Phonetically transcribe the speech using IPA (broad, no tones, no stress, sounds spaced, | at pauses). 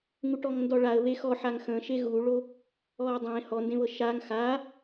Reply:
ŋ u ʈ ɔ ŋ n d ɔ ɭ a ə̯ β e x ɔ ħ a ŋ x ə̃ ʃ e ɣ u ɭ o | ɔ ə̯ dˤ ẽ h ɔ n d ẽ β ɤ ʃ a ŋ x a